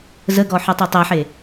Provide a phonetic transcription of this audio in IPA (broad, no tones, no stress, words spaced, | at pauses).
zəɡɔħytˤu tˤeħe